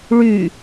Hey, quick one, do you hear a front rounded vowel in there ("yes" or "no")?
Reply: yes